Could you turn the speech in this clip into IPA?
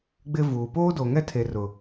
ɡ͡bɪ˦vuː˨ poː˦do˨ŋɛ˦tʰe˨ rʊ˨

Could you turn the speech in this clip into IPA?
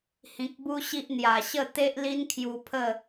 hĩ˨k̚bu˦ɕi˦ʔ n̪ja˨˩ɕə˥˧ t̪e˦ʔli˦nkʰju˧pʰə˥˧

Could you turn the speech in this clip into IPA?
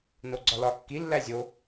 noɡ͡ǀɒlɒ kːi lːæzʲo

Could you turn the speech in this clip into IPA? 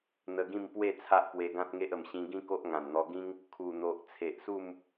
n̪ə˧ ɡĩ˥˧mpwe˥˧ t͡sʰa˦ʔpwe˧ɡã˦t̚ŋe˦ʔ ə˨˩mɕĩ˧ ɡĩ˦ ko˦ʔŋã˨˩nn̪ɔ˧ ɡĩ˦ŋ | kʰu˨˩n̪o˨ʔ t͡sʰe˨ʔsu˥˧m

